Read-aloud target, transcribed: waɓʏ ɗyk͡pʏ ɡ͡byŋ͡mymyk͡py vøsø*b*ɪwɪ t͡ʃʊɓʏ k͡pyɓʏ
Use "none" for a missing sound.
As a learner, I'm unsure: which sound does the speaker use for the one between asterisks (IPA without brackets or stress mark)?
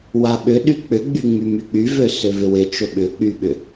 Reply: v